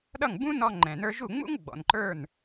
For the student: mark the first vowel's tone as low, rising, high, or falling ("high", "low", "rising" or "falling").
falling